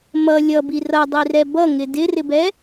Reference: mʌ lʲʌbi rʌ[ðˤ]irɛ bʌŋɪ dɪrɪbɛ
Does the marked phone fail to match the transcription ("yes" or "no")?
yes